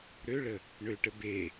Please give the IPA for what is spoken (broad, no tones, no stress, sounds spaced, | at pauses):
ɾ ø ɭ ə | ɳ ø ʈ ə b e